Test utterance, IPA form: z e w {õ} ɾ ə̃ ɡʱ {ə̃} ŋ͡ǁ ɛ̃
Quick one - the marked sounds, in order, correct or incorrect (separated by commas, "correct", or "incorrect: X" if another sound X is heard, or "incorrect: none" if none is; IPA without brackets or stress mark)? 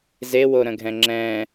incorrect: o, incorrect: ɛ̃